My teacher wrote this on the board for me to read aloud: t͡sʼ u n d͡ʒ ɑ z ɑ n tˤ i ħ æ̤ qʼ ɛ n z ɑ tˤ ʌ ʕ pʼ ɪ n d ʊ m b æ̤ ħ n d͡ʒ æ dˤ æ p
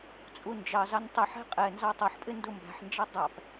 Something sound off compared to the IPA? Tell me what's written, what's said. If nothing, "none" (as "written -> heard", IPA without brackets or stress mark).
ʕ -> ħ